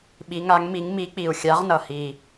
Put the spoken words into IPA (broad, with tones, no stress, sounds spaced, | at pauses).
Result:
ɓ i˨˦ ŋ a˨˦ ŋ m i˨˦ ŋ m i˨˦ k͡p i˨˩ u̯ xʲ a˨˦ ʁ n ʌ˨˩ h i˨˩